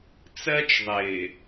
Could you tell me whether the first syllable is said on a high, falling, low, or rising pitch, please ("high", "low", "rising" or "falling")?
high